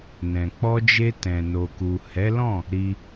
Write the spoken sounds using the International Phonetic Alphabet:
n ɛ̃˨ k͡p ɔ˧ d͡ʒ e˧ t ɛ̃˨ n o˨ k u˨ h ɛ˨˦ l ɔ̃˦˨ | ɾ i˧

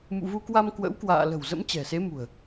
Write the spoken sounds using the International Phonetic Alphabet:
m ṵ˧˨ v u˧ k w a˧ m k w ə̰˧˥ w k w a̰ː˧˨ l ə̤˨˩ w z ə̰˧˥ m t͡ɕ ɛ̤˨˩ s e˨˦ m ṳ˨˩ ə̯

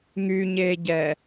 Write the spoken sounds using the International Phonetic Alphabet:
ŋ y ɲ e ɟ ɛ

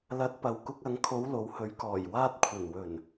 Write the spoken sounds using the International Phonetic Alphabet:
l ɐ˨˥ t̚ p ɐ˨ w k ʊ˧ k̚ ɐ˨˧ ŋ kʰ o˨˧ w l o˨ w h ɵ˨˥ ɥ k ɔː˨˩ j w aː˧ t̚ kʷʰ ɐ˨˩ n w ɵ˨˩ n

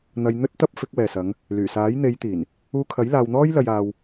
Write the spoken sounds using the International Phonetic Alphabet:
n̪ ɐ˧ j n̪ ɵ˥ t̚ t̪ ɐ˥ p̚ f ɪ˨˥ k̚ w ɛː˨ s ɐ˨˧ ŋ | l yː˨˩ s aː˨˥ j n̪ e˨˧ j t̪ iː˨˩ n | uː˧ kʰ ɐ˨˥ j l aː˧ w n̪ ɔː˥ j l ɐ˧ j aː˧ w

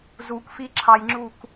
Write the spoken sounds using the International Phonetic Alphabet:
z u k f i ǁʰ ɑ j ŋ͡ǁ u k

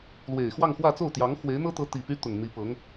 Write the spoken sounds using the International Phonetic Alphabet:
l w e˨˩ ɪ̯ x w ɑ˥˧ ŋ x w ä˥˧ t͡s o˥˩ ʊ̯ t̪ j ɑ˧˥ ŋ x w e˧˥ ɪ̯ n̪ ɤ˥ t̪ ɤ˧˥ t̪ i˨˩ p y˥ t̪ ʊ˨˩ ŋ n̪ i˧˥ p ɤ˧˥ ŋ

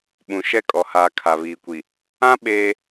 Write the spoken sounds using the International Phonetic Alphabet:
ɓ ũ˨ ʃ ɛ˦˨ kʼ ɔ˨ h aː˨ kʰ a˨ β iː˨ kʷ i˨ | ã˦ ɓ eː˦

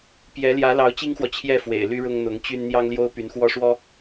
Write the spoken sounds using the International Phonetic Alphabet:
p j ɛ˧˥ l j ä˧˥ l ɑ˧˥ ʊ̯ t͡ɕ i˥ ŋ x w ɔ˨ t͡ɕʰ j ɛ˥˩ f w ḛ˨˩ ɪ̯ l y˥ ɻ ʊ˥ ŋ n̪ ʊ˧˥ ŋ t͡ɕ y˥ n n̪ j ɑ˥ ŋ l j o˥ ʊ̯ p y˧˥ n x w ɔ˥ ʂ w ɔ˥

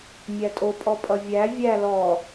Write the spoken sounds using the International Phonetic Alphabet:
mʲ æ tʼ o pʼ ɔ pʼ ʌ vʲ æ vʲ æ l ɔ

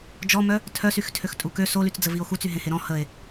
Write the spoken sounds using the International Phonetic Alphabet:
d͡ʒ ɔ m œ | tʰ œ s y x tʰ ø x tʼ u k ø s o l y t͡s d͡z ə v i o̯ x u t͡s y ɦ ẽ h e ɾ ɔ̃ h ə e̯

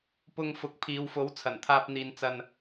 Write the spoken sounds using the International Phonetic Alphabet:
p ʊ˧ ŋ f ʊ˨˥ k̚ pʰ iː˨˧ w f o˨˥ w t͡sʰ ɐ˨˩ n t̪ʰ aː˧ p̚ n̪ iː˨ n t͡s ɐ˧ n

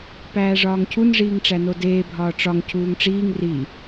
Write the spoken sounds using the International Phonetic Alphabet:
p æː ʐ ɒː ŋ cʰ u n ʐ iː ŋ ʈ͡ʂ æ n o d eː bʱ ɒː ʈ͡ʂ ɒ ŋ cʰ uː ŋ ʈ͡ʂ iː ŋ r i

